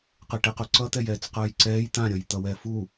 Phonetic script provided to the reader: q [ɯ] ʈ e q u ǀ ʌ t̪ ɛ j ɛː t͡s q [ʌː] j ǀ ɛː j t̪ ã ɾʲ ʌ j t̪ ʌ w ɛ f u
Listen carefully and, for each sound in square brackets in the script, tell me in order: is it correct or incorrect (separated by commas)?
correct, correct